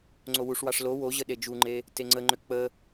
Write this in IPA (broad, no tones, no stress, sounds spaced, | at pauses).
ŋ͡ǀ o w u ʂ w ɑ ʂ l o w o ʑ ə ɗ e d͡ʒ u ŋ͡ǃ e | t e ŋ͡ǀ ə ŋ͡ǃ ʏ k͡p ə